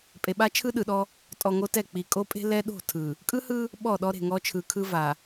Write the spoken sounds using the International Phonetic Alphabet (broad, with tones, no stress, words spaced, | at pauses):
pʼe˨ɓa˦ t͡ʃʰɯ˦ɗɯ˨ɗɔ˦ | tʼɔ˨ ŋo˦tɛ˦˨ k͡pi˨kʼo˦pʼe̤˦ lɛ˦ɗo̤˦˨tʰɯ˨ | kʼɯ˦hɯ˦ | ɓɔ˦˨ɗɔ˦ ɾe̤˨ŋɔ˦t͡ʃʰɯ˨ kʰɯ˦va˨